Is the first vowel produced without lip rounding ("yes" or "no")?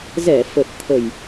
yes